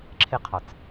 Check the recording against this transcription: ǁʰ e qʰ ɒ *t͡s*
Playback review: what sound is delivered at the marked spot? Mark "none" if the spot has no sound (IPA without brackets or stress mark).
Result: t͡s